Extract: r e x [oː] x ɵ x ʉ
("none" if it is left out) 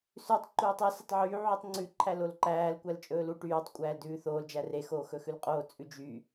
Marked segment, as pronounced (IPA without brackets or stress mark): oː